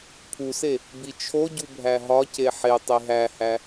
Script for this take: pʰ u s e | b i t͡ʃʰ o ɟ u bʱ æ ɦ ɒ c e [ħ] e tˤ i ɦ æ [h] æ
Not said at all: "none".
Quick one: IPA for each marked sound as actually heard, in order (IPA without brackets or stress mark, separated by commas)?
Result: ħ, h